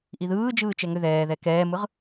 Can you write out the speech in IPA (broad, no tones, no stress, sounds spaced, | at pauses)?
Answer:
ʔ i ð ɯː d͡ʒ ɯː t͡ʃ ɛ ŋ ʏ ð ɛː ð ɛ k ɛː m ɯ ʁ